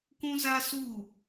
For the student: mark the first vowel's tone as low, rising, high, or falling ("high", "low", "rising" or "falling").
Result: high